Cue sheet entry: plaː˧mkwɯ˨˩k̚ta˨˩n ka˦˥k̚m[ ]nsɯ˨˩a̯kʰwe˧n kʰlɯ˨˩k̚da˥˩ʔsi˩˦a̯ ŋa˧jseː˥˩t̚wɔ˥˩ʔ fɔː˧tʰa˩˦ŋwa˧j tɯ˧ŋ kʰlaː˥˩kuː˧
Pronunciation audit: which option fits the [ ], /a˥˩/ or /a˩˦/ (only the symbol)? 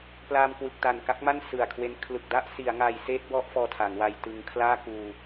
a˥˩